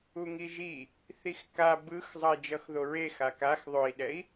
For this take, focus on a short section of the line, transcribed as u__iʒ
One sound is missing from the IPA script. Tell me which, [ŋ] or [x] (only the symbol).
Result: ŋ